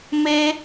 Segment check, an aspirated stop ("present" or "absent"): absent